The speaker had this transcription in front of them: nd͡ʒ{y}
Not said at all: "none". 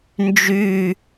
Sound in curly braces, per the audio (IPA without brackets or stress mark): y